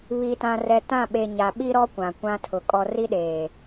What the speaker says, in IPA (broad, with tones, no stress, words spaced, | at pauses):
βi˨tã˨rɛ˨ tã˦˨ɓe˨ ɲa˨ɓi˦ɾɔ˦ kʷã˨kʷã˦tʰʊ˨ kʼɔ˨ri˦ɗeː˨